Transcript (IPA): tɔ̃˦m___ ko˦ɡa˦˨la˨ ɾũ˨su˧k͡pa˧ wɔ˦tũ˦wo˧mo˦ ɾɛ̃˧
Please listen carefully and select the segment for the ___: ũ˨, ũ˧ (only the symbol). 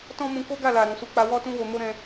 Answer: ũ˧